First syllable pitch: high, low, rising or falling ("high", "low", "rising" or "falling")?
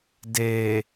low